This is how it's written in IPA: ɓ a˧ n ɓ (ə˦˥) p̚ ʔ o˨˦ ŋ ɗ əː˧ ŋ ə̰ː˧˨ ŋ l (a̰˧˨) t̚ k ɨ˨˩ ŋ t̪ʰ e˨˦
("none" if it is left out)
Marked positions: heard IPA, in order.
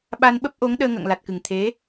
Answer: ə˦˥, a˨˩

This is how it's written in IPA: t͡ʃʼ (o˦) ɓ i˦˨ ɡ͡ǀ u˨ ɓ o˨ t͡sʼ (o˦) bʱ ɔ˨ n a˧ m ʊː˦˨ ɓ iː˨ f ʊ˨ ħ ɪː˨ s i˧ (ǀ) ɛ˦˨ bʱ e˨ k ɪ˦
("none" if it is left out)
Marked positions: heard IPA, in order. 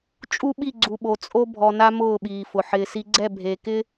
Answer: u˦, o˦, ɡ͡ǀ

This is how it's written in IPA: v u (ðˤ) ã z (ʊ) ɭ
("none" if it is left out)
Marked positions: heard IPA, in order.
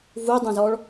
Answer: dˤ, ɔ

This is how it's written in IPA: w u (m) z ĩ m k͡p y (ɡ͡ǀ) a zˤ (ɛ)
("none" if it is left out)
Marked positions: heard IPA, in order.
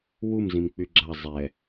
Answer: m, ɡ͡ǁ, ɛ

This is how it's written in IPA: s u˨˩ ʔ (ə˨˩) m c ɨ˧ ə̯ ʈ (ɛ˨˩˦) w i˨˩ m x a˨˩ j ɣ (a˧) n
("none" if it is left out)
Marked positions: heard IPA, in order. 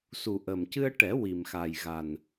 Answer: ə˨˩, ɛ˨˩˦, a˨˩

